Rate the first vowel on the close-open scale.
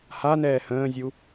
open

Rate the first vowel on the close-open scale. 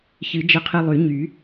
close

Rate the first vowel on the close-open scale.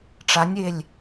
open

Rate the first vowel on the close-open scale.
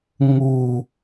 close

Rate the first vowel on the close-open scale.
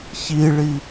close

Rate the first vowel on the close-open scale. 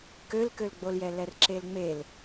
mid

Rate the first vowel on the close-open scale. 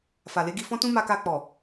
open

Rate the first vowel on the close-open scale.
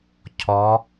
mid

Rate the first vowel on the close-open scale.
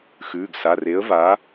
close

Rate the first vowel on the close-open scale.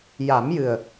open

